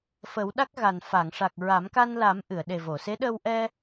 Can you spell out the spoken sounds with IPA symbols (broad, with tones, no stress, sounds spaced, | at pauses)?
f ə˨˩˦ w ɗ a˦˥ k̚ ɣ a˨˩ n f a˨˩˨ ŋ ʂ a˨˩ k̚ ɹ a˨˩˦ m k a˧ n l a˨˩˦ m ʔ ɨ˨˩˨ ə̯ ɗ e˨˩ v o˨˩˨ s e˧˥ ɗ ə˧ w ʔ ɛ˧